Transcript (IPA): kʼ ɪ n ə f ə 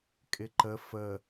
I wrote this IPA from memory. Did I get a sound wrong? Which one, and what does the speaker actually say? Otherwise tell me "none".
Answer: n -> ǃ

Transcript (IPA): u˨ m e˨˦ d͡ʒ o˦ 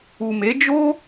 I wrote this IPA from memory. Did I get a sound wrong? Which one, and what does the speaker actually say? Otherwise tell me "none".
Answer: none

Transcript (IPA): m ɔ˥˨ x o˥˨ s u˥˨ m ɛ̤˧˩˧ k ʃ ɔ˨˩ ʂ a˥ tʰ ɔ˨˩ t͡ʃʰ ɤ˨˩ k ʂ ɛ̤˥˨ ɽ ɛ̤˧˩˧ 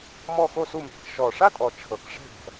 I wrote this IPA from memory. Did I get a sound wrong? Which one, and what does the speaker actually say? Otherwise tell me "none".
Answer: tʰ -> tʼ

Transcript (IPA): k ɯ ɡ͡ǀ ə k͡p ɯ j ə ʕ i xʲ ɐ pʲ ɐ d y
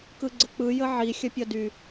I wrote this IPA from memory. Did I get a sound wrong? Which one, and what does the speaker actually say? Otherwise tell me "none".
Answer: none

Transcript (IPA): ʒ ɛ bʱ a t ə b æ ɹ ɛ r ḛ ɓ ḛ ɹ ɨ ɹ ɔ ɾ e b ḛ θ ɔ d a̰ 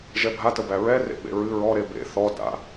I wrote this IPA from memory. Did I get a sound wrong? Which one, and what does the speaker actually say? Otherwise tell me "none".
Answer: none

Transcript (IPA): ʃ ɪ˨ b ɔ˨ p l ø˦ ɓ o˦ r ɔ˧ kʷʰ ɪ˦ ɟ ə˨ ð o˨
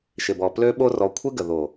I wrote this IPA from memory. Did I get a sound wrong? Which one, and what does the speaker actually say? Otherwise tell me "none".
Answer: ɟ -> ɡ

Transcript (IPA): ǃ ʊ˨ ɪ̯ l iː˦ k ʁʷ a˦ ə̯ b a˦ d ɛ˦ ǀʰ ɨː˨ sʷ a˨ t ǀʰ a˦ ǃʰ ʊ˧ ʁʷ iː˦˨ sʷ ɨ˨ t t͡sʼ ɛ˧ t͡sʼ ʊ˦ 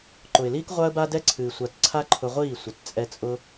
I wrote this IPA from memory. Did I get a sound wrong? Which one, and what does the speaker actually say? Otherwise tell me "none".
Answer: none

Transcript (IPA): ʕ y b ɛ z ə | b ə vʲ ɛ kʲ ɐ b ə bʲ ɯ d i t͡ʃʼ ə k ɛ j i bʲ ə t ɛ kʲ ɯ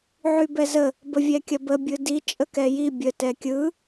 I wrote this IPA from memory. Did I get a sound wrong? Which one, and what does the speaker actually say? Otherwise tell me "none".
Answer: none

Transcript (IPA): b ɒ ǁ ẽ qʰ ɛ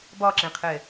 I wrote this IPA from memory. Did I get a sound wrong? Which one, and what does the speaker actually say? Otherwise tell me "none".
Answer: none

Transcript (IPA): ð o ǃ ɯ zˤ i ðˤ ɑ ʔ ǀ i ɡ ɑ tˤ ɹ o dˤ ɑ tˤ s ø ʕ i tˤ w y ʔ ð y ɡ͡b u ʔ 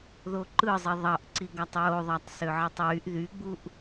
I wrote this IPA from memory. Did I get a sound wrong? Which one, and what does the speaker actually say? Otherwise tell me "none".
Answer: dˤ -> ðˤ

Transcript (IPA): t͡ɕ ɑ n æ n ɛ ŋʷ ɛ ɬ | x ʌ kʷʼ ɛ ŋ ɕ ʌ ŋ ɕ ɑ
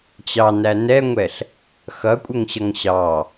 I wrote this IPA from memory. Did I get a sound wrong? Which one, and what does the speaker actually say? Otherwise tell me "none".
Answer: none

